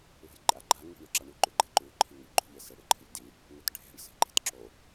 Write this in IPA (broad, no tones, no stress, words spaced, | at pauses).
lṳjǃʼaɡ͡ǃa ŋi̤ɳʉǁaɳʉ ǃʉɡ͡ǃe̤ǃʉ ǃʰiŋɐʎɡ͡ǃṳ ʎese ɽɨǃʰɨʎdi | ŋɵtɖʱe̤ɳ se̤ǃe̤tǁo